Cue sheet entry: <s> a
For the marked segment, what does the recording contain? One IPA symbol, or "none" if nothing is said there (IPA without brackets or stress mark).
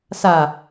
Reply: s